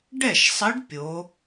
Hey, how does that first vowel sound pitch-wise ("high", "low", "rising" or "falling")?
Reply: falling